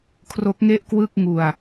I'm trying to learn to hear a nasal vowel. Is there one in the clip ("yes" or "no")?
no